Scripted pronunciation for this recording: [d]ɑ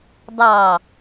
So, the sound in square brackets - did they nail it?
yes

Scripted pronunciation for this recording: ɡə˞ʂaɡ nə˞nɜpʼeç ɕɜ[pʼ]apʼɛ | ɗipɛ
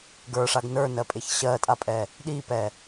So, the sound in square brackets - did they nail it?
no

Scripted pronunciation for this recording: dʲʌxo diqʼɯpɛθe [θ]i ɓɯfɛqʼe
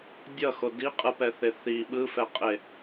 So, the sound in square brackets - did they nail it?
yes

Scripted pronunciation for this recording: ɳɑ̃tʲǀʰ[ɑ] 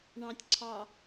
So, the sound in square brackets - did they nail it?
yes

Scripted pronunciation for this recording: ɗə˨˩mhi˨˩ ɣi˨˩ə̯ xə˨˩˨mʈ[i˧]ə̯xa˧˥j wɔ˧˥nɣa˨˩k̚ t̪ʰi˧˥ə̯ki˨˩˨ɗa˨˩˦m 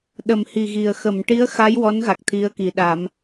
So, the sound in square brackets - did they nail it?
no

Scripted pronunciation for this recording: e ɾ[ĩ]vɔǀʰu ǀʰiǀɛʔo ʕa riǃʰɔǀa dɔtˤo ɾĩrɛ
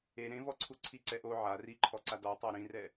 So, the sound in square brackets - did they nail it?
no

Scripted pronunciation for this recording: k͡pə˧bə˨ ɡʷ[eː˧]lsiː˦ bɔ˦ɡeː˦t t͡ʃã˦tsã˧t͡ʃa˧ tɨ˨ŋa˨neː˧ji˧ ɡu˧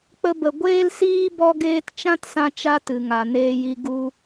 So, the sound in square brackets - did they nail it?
no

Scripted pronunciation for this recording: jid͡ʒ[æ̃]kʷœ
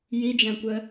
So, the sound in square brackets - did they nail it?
yes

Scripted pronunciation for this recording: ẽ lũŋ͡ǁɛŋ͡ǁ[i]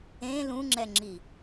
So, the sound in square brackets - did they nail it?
yes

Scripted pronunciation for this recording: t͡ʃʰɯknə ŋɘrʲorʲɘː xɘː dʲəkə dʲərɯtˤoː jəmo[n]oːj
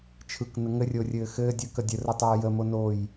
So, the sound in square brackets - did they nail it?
yes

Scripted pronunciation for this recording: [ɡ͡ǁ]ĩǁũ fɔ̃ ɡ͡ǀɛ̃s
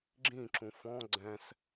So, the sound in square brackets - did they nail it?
yes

